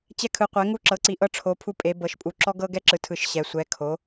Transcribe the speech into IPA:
t͡ɕɛ˧kʰɯ˩˧qʷɛ˩˧ ŋu˧ ǁɤ˩˧ǀi˩˧ ʔɤ˧ʈ͡ʂʰo˩˧ pʰu˧pʼe˩˧ bɤ˩˧ʃpʼu˩˧ ǁɔ˧ɡɤ˧ ɡɛ˧ǁɯ˩˧ tʰɯ˩˧ʃ ɕɛ˩˧ sʷɛ˩˧kʰo˩˧

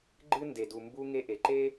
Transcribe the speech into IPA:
ɡ͡ǃɨ˦ nde˨du˨ mbu˧ ŋe˧ʔe˨ǃe˦

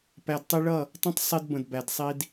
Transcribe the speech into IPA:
pæ˨dtˤi˧ɭʌ˦˨ | tˤə̃˦tˤ sˤi˧d bə̃˨dbæ˨dsˤi˧d

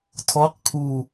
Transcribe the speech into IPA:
tʰɔq kʰu

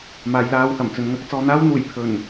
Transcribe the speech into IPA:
maː˨˧jlaː˧whɐ˨˩m t͡sɵ˨nŋɐ˨˥k̚t͡sɔː˧ n̪aː˥wn̪uː˨˩j pʰɵ˨˩n

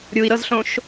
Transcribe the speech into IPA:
ɾʲui̯ɾɤzɬõʃ

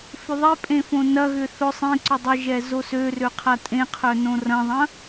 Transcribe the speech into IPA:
fʏðˤepʼẽ fõnɐɣʏ θʊ sˤẽǀʊ dˤɪʒɛ zosørø qʰatʼẽqʰœ nõrɐ̃ðˤɐ̃

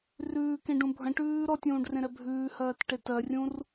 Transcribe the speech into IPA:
rʉːkẽɖũ bʱə̃ʈʉː ɾɔtʲũːɖrẽɾɛ bʱʉːhɜːtʈe tɜrʲũr

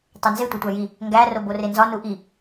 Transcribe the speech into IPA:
tˤenze tʷetʷæji | ŋɡæ roborenzɒ nuʔi

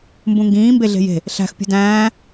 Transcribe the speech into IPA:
mbũŋɡĩː mbeɮe̤je̤ | ɬæ̤x pʲṳdæ̃ː

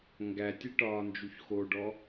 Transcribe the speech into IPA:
ŋɡætʲe ʈɒːnd͡ʒuçxoɖɔ

